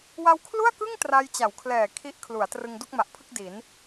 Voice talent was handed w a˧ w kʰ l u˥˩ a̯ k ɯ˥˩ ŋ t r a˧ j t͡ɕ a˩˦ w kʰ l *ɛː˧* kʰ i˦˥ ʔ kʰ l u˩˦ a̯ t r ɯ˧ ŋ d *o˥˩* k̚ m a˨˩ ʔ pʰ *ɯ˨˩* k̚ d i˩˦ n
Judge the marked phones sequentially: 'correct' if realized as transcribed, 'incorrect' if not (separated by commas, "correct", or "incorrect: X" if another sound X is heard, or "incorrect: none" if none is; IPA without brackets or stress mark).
incorrect: ɛː˨˩, incorrect: u˥˩, incorrect: ɯ˥˩